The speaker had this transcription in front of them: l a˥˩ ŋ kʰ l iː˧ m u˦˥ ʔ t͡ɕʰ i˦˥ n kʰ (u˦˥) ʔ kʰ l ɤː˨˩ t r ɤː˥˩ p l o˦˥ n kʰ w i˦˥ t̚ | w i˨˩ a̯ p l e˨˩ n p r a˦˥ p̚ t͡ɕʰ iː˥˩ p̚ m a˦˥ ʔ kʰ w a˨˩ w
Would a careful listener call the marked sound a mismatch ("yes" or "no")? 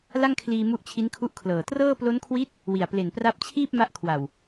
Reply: no